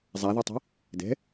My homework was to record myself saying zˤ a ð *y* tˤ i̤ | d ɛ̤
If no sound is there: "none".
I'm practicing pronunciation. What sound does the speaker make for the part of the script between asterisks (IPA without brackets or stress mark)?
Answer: y